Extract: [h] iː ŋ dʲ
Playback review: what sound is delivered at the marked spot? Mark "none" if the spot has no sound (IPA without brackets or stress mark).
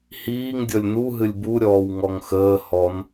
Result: h